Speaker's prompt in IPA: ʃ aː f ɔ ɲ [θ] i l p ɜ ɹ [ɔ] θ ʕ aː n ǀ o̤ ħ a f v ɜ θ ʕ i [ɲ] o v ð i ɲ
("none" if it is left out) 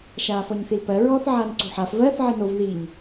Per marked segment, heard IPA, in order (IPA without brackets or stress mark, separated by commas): θ, ɔː, n